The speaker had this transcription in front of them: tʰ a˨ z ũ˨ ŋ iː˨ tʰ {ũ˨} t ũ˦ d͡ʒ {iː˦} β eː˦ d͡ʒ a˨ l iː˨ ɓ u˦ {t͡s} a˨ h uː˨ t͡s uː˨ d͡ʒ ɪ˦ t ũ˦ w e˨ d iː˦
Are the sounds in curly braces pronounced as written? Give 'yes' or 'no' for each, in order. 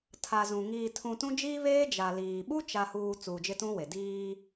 yes, yes, no

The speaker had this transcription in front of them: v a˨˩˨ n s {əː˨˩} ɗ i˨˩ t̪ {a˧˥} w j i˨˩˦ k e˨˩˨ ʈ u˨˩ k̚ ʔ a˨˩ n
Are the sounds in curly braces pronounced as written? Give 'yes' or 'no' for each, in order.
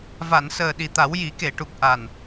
yes, no

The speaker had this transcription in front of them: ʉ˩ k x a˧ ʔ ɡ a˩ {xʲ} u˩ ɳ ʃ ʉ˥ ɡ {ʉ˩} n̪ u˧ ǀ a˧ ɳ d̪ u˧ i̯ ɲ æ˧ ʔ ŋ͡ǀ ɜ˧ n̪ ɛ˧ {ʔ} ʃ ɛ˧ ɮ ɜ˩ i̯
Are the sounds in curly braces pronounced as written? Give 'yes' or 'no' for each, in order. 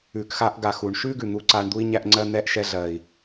no, yes, yes

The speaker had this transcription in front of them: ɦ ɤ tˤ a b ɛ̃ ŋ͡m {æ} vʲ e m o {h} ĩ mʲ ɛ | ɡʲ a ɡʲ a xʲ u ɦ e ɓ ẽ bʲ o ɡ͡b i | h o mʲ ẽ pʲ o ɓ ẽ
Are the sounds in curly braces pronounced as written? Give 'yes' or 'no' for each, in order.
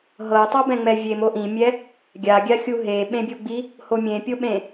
no, no

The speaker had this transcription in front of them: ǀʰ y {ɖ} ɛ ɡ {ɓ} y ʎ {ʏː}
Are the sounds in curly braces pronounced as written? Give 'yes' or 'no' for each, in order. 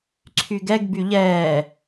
no, no, no

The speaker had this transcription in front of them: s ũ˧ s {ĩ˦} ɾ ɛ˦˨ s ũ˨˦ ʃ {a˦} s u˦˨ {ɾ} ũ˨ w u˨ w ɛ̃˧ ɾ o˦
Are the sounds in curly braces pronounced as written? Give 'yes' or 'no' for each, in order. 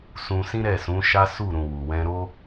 yes, yes, yes

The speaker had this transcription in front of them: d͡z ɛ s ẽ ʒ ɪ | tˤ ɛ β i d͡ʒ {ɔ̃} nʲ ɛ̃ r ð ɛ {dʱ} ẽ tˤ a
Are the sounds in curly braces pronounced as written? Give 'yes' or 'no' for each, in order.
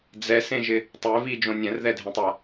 no, yes

